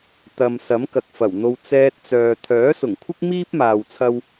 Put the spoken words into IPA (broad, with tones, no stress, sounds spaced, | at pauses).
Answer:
t̪ ɐ˨ m s ɐ˨˥ m k ɐ˨ k̚ f ɐ˨˩ w n̪ o˧ w t͡s ɛː˧ t̚ t͡s œː˨ t̪ʰ œː˨˥ s ʊ˨˩ ŋ kʷʰ ɪ˥ k̚ m iː˥ p̚ m aː˨ w t͡sʰ ɐ˧ w